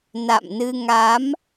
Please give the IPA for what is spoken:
n a̰˧˨ m n ɨ˧ ŋ a˨˦ m

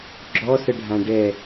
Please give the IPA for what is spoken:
ɡ͡ǁ ɔ s ə ɖʱ ã ɖ ɛ

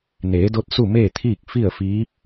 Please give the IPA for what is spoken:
n eː˩˧ d o˧ t̚ s u˥˨ m eː˥˨ t̪ʰ iː˥˨ k̚ f i˥˨ ə̯ f iː˧˥ p̚

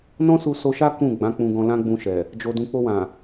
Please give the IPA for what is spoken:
n ɔ̃˦ s u˧ s o˧ ʃ a˦ k ũ˦˨ ɡ͡b ã˨˦ k͡p ũ˧ ɡ ɔ̃˧ l ã˦ ɡ͡b ũ˧ ʃ ɛ˨ | d͡ʒ o˨ d ũ˨ k͡p o˧ w ã˨

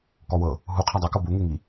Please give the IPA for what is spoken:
k ɔ w ɤ | ɦ u qʰ a dˤ u k ɤ b u ŋ e ŋ i

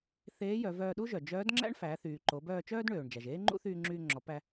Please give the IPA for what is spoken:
θ eː˧˥ j œ˩˧ v œː˧ ɗ u˥ ʒ œ˩ d͡ʒ œː˧˥ d ŋ͡ǁ æ̰˥ ɳ f æ˩˧ θ yː˩ ǃ o˩˧ b œː˧ t͡ʃ œː˥ d ɳ øː˩ ɳ d͡ʒ æ˩ ʒ eː˥ ŋ͡ǃ ṵ˥ θ yː˧ ŋ͡ǁ yː˧ ŋ͡ǁ ɔ˩˧ p æ˧

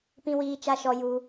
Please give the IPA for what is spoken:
p ĩ˧ w iː˧ t͡ʃ a˧ ʃ ɔ˧ j u˧

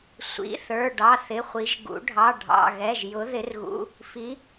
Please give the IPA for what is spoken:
sʷ ḭ˩˧˩ θ ə˞˩˧˩ ɖ ɑ˩˧˩ θ ɪ˩˧˩ χʷ i˩˧ ʒ ɡ ṵ˩˧ ɖʱ ɑ˩˧˩ ɖʱ ɑ̰˩˧˩ ɣ ɛ˩˧˩ ʒ j ʊ˩˧ ð ɪ˩˧ r ɣ ṵ˩˧˩ | f i˩˧

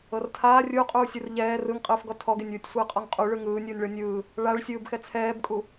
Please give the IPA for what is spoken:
ɤ r tʰ aː rʲ u qʼ uː sʲ u r ʎ ɛː r ɯ ŋ qʼ ɯː f ɡ ɔ tʰ ɔ ɡ e nʲ w u tʲ sʷ ɯː qʼ ɔ ŋ qʼ u ɭ ɯ ŋ ɯː nʲ uː nʲ ɭ ɤ nʲ ɯː | ɭ a ɭ sʲ ɯː b x ɛ t͡sʰ ɛː b kʼ u

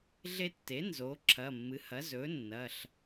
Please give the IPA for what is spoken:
ɮ e˦ tː e˩˥ n z oː˩˥ ǁʰ ɐ˩˧˩ mː ɨ˩˥ h ɐ˩˥ z ɵː˩˥ nː ɐː˩˧˩ ɬ

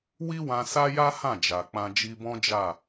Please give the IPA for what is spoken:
w i˦ w ã˧ s a˦ j a˦ h ã˦˨ d͡ʒ a˨ k͡p ã˧ d͡ʒ i˧ b ɔ̃˦ d͡ʒ a˦˨

